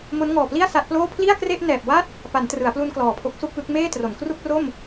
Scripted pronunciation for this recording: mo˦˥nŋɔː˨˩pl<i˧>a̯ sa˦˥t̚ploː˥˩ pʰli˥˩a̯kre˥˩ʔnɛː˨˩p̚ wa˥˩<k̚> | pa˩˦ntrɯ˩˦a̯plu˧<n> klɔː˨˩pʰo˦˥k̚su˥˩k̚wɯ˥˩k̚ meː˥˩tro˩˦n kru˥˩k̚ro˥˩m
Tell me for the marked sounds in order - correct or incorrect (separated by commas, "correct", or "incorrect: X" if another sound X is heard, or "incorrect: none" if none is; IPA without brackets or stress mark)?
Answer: incorrect: i˥˩, incorrect: t̚, correct